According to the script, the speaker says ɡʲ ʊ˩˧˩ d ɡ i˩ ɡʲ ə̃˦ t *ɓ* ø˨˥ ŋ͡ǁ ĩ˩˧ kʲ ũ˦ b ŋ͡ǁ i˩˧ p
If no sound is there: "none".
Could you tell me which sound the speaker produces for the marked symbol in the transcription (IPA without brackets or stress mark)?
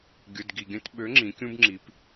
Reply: ɓ